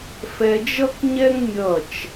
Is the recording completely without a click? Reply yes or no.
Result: yes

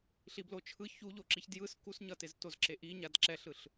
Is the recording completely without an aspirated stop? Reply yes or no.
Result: no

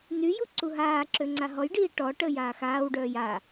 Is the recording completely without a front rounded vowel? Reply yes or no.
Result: no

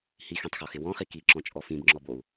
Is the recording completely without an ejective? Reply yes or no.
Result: no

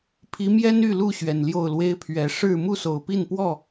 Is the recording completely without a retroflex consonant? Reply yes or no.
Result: no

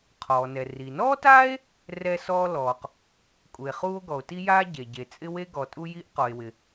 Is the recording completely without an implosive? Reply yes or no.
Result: yes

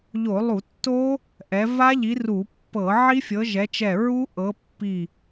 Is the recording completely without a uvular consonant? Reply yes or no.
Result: yes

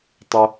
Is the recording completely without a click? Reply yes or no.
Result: yes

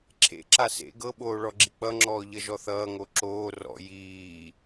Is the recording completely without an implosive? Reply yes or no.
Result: no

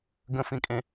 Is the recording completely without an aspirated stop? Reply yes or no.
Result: yes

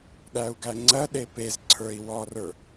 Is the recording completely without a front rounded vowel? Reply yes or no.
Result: yes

